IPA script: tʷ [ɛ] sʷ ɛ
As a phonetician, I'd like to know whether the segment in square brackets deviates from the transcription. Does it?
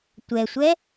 no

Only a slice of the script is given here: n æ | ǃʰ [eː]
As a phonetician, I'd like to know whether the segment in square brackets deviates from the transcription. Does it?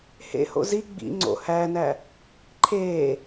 no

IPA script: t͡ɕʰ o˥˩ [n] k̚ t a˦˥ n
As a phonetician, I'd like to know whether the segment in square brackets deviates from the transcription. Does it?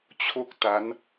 yes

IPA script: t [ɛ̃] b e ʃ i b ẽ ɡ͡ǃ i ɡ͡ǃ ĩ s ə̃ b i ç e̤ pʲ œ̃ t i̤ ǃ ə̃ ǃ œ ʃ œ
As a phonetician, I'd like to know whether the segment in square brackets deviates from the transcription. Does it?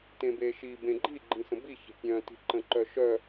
yes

